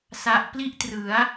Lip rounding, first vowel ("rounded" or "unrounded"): unrounded